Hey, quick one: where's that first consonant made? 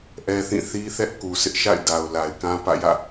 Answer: throat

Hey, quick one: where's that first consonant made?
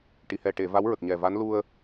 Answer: retroflex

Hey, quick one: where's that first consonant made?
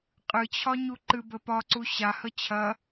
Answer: uvula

